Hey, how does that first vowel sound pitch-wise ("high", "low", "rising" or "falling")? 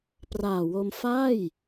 low